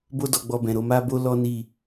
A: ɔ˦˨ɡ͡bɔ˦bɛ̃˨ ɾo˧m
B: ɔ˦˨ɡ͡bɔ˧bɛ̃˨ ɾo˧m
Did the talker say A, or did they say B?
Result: B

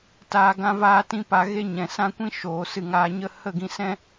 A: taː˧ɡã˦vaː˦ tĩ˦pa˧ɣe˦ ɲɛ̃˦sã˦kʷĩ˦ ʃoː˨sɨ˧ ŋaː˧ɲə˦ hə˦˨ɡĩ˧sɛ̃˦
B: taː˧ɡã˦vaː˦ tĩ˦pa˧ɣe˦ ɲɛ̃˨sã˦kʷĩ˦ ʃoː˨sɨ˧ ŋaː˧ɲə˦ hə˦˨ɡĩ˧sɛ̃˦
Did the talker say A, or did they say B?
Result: B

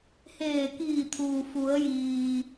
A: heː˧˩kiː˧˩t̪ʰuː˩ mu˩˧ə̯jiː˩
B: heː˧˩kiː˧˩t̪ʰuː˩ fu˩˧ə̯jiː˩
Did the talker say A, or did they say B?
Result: B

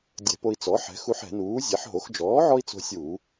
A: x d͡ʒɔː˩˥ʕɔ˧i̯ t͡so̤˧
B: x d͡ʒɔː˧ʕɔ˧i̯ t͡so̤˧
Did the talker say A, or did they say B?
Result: A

